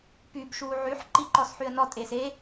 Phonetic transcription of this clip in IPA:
pyb ʃuːʕyħ ǃiǃɔsħyə̯nɔ tʼeːse

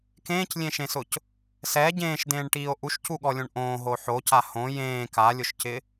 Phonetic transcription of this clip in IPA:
kẽːclʲẽʃẽsʊc | sɛ ɟẽːʃdẽːɳʈiːo̯ ʔuʃcuɠɔlʲõɳ ʔõːɦo ħoca hõ jẽː kalʲʊʃcɪ

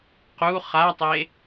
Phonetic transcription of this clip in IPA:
qu χatˤe

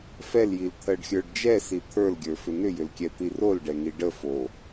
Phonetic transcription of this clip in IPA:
fɛljilt̪ʰɜɖxʲə˞ɖ d͡ʒɛsi t̪ʰə˞lɡʲə˞fʏ nʏjʏlkʲɛt̪i rolɖɛŋi ɖəfo

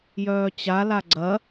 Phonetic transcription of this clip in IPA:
jœːt͡ɕa laɡ͡ǀɐ

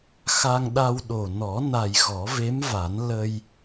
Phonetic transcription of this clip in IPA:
xa˧ŋɗa˧wɗo˨˩ nɔ˨˩˦na˨˩j ɣɔ˨˩˦ve˧˥mva˨˩˦n lə˧j

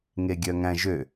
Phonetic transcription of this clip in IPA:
ŋeɡʲœŋæ̃ʒø

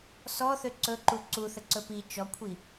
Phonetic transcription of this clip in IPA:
sɔθø ǀɵǃu ǀuθə ǀɵpi t͡ʃɔkʷʰi

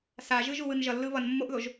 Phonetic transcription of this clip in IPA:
saʒɯ ʒuwɯnʒʌlːɯ βʌn mːoʔðoʒ

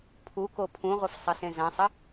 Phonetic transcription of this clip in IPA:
pʰuko pʰũʁʷəfsˤəsẽ zãsˤə

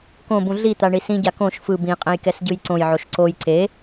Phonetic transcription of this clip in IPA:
kõbũ ɮit̪a ɳisĩɟa kõʃ fɯ bĩqʼẽj kɛsɟɯjǀõjʕoʃ ǀoj ǀe

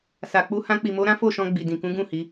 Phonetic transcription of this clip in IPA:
sa˨k͡pu˧ hã˧k͡pi˨mo˧ɾã˦ fo˦˨ʃɔ̃˧ ɡ͡bi˨dĩ˨kũ˨˦ɡũ˦˨ hi˨˦

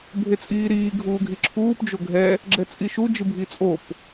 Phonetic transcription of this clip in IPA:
bʱet͡sʼiːɾiː ɡʱuːɡʱiǁʰuːp d͡ʒoɡʱɛ | ɡ͡ǁɛt͡sʼiʃu d͡ʒɯbʱit͡sʼop

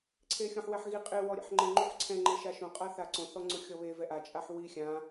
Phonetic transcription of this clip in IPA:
ǀʰexʲõħwɛħɣi qʼɪ wɔɾʲa̰ħŋ͡ǃɪ ŋ͡ǃuħǀʰɛ̃ ŋ͡ǃeʃaʃõ qʼaθaǀõ θɔŋ͡ǀʊxʲɔβe vɛʔa t͡ʃʼaħwi xʲã

